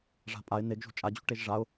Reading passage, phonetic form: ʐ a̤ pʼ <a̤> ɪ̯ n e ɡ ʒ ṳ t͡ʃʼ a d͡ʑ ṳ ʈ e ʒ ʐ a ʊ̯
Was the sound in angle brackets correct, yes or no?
no